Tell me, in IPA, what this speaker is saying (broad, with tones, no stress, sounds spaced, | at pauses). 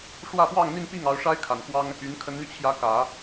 ʂ w ä˥˧ f w ɑ˥˧ ŋ n̪ i˥˧ n p i˥˩ ŋ ɑ˧˥ ʊ̯ ʂ a˥ ɪ̯ kʰ a˨˩ n k w ɑ˥ ŋ | y˧˥ n kʰ ə˧˥ n n̪ y˧ t͡ɕʰ j ä˧˥ k ä˨˩˦